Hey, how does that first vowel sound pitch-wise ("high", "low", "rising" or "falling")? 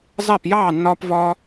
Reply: falling